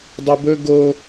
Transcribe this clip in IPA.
dˤ o b ɵ ɡ o

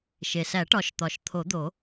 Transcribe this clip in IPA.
ʃ e˩ s æ˨˩˦ ʈ ɒ˨˩˦ ʃ t̪ ɒ˩ ʃ t̪ʰ o˨˩˦ d̪ o˨˩˦

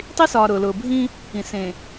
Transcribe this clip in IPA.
tˤ i˦ s ɒː˨ ɾ ʊː˨ l ʊː˨ bʱ ĩ˦ | ĩ˨ s ẽ˨

